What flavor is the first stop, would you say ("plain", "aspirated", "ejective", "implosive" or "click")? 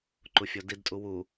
click